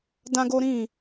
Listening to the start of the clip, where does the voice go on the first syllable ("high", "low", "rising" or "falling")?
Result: high